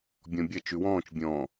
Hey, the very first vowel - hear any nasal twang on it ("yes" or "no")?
yes